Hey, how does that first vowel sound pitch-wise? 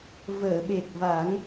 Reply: low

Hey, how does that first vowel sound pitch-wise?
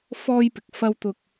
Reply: high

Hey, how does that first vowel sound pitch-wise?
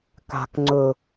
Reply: low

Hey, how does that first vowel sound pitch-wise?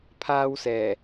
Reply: high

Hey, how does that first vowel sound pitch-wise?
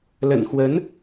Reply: low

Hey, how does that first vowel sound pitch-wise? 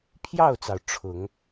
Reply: falling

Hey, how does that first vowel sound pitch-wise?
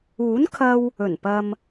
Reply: rising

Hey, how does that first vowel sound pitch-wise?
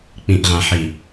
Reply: low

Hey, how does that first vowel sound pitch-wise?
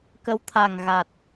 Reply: rising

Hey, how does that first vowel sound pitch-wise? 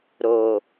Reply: low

